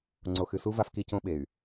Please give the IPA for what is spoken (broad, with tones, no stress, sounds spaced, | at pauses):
ŋ͡ǀ o˨ x ɨ˨ s u˦ v a˦ f k i˦ c õ˦ ɓ e˨ y̯